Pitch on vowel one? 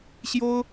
high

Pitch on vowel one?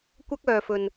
high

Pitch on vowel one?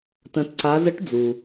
rising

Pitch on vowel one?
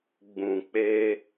low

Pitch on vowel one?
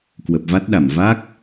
low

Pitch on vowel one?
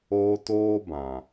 high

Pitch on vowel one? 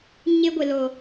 high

